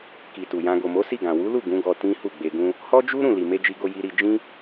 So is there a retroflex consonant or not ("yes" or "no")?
no